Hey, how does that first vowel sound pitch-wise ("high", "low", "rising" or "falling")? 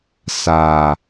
low